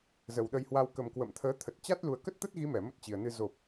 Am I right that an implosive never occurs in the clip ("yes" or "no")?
no